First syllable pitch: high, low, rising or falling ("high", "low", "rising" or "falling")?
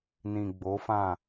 low